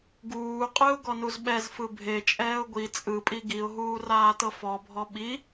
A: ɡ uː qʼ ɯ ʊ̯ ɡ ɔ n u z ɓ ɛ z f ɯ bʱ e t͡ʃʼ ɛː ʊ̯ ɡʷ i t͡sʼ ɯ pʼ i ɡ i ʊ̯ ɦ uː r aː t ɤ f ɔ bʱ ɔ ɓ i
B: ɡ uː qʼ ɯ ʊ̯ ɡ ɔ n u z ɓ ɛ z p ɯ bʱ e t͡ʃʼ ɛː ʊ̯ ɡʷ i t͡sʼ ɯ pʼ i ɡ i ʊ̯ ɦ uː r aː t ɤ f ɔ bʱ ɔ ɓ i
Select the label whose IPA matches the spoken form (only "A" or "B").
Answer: A